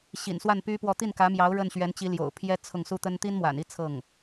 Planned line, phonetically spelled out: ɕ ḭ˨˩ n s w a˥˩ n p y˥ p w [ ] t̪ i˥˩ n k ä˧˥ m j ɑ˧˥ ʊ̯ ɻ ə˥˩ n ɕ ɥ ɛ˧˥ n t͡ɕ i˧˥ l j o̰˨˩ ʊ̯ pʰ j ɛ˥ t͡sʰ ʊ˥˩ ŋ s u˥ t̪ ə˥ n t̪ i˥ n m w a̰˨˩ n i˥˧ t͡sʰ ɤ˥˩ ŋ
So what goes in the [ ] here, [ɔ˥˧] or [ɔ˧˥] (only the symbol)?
ɔ˥˧